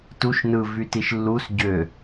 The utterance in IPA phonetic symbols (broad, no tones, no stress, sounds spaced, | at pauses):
t u ʃ n ɯ v y t i ʃ lː u s ɟ ø